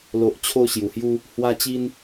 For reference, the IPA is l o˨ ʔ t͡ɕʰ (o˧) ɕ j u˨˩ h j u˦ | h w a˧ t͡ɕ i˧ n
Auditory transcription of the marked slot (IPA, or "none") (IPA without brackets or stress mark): o˧